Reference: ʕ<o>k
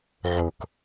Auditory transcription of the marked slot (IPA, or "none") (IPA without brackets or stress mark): o